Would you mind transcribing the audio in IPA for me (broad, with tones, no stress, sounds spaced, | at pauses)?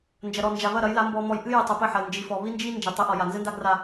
n d͡ʒ ɐ˨ ɾ ɔ˨ n d͡ʒ a˨ β ɐ˦˨ ɾ ɐ˨˦ j l a˨˦ m b ɔ˨ m ɔ˨ j ʔ ɨ˦ j ɨ˨ tˤ ɘ˨ p ɘ˦˨ ħ ɐ˨ l n d͡ʒ i˨ f ɔ˨ β i˦ n d͡ʒ i˦ n d͡ʒ i˨ tˤ ɨ˨˦ ʔ ɔ˨ j a˨ n z ɘ˦ n d a˦ ɡ r a˦